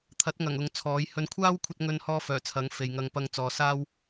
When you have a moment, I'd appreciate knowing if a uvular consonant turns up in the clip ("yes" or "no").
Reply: no